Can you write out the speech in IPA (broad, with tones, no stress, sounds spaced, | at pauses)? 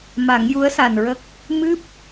m a˨˩˦ ŋ j u˧˥ ə̯ s a˨˩ n ɹ ə˦˥ k̚ | m ɨ˦˥ p̚